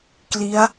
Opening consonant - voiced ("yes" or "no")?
no